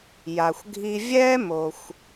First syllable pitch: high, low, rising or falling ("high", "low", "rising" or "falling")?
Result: low